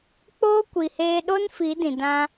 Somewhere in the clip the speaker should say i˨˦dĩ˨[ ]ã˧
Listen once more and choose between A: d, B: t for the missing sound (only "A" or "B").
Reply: A